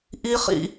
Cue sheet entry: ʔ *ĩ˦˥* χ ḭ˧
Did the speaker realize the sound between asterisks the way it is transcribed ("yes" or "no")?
no